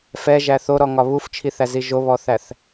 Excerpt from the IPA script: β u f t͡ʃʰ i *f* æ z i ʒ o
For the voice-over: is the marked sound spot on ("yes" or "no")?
no